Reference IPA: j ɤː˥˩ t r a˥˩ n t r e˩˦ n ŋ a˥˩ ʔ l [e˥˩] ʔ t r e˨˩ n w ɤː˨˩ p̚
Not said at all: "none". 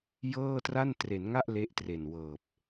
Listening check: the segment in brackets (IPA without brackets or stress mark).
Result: e˦˥